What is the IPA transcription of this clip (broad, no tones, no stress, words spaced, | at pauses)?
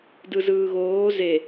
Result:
dɯzɯːɣoː ze